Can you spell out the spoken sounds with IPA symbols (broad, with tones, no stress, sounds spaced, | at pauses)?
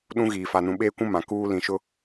ɗ ũ˦ ɣ iː˨ f a˨ n ũ˨ ɓ eː˦ kʷ ũ˦ m ã˨ k uː˦ l ĩ˨ ʃ ʊ˦